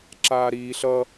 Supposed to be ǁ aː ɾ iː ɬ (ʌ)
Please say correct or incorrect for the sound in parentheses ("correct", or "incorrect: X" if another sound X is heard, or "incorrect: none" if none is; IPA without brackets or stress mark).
correct